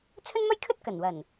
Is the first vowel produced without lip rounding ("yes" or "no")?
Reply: no